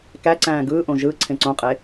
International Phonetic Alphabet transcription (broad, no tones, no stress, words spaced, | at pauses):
kæ ǀæ̃ːɡɯːʔõ ʒɯ ǀʰẽǀõqʼe